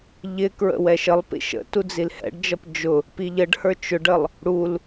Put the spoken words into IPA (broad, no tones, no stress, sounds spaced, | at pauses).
ʎ ɪ k ɹ ə̰ w ɛ ʃ ə lˠ p ḭ ʃ ə̰ t u d͡z i l h ɛ̰ ɖ d͡ʒ ʌ p d͡ʒ ʊ | p i ʎ ə ɖ h ə˞ t͡ʃ ʊ ɖ ə lˠ | ɽ u l